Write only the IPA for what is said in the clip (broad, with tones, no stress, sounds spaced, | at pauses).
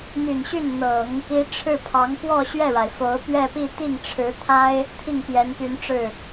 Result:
n̪ y˨˩ n ɕ y˥˩ n n̪ ɤ˨˩˦ ŋ | i˧˥ ʈ͡ʂʰ ɻ̩˥˩ pʰ ɑ˧˥ ŋ p w ɔ˥˧ ɕ ɥ ɛ˥˩ ɻ a˩ ɪ̯ f o˧˥ ʊ̯ p ɥ ɛ˥˧ p i˥˧ t̪ i˥˩ ŋ ʈ͡ʂʰ ɻ̩˧˥ t̪ʰ a˥ ɪ̯ | t̪ʰ i˥˩ ŋ p j ɛ˧˥ n p y˧˥ n ʈ͡ʂ ɻ̩˥˩